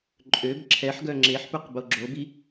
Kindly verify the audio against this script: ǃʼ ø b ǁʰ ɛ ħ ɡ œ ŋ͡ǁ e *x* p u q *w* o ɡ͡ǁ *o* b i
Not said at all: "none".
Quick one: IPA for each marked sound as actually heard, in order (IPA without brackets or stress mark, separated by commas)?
ħ, b, o